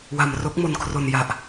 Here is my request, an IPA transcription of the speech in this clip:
wa˧m ro˦˥k̚mo˧nkʰro˧n ja˨˩ʔ

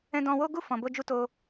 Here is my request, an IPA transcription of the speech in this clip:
ɛ̃˧dɔ̃˧wo˦ ɡu˦˨fɔ̃˨bo˧d͡ʒu˧ to˧

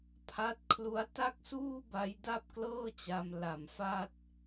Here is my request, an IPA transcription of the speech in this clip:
pʰa˦˥t̚kʰlu˦˥a̯ ta˥˩k̚suː˥˩ ba˦˥jda˥˩p̚klɤː˥˩t͡ɕa˧m la˨˩mfa˥˩t̚

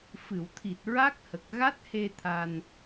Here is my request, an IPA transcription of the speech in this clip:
fɨ˨˩˨wt̪ʰi˨˩t̚ɹa˦˥k̚hə˨˩k̚ ɣa˦˥t̚he˧ t̪ʰa˧n

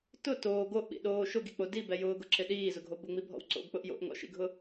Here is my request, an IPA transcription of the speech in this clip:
tʊ toː ɡoʔɓḭɗoː ʃʊɡik͡po dibɛ jʊːɡʊǁɪ ɗiːzʊɡʱo bʊŋ͡mibʱɔ̰w ǀo̰ɡk͡pʊʔ jo̰ʔŋɔ̰ʃḭɡʱʊ

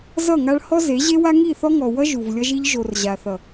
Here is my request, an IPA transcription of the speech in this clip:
zʌ˦˨ŋa˦ɭ hɔ˦ze˨˦ʑe˦wa˦ ŋi˦˨θɔ˦ŋɔ˨ wʌ˦ ʒu˨vlʲʌ˦ʒi˦ʎ ʒo˨r ʑa˨θʌ˨

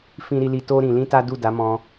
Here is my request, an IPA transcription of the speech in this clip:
fĩ˦ɾi˦li˦ to˦ɾĩ˧lĩ˦ta˦ du˦˨da˨˦ mɔ̃˧

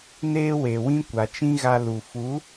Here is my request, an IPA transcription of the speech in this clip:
neː˧ we˨wĩ˦ kʷa˨t͡ʃĩ˦ ɣa˧ lu˨ fu˨˦

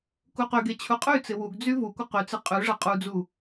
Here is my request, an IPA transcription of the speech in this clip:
kuqyɡe t͡ɕʰuqʼyt͡sɪ wuɡd͡zy vukʷɪ qyt͡sɪ qʼyʐɐ qʼud͡zu

